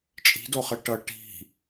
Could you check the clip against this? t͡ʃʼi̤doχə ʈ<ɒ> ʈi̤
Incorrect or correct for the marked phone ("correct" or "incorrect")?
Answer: incorrect